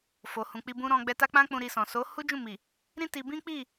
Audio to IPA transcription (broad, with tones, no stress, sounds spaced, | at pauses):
f o˨ h ũ˨ k͡p i˧ b ũ˦ ɾ ɔ̃˧ ɡ͡b ɛ˧ t a˦ k͡p ã˦ k͡p ũ˧ ɾ i˧ s ɔ̃˨ s o˨˦ h u˦ d͡ʒ ũ˦˨ m i˨ | ɾ ĩ˦ t i˧ b ĩ˦ k͡p i˦˨